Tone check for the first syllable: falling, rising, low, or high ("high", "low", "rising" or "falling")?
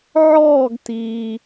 falling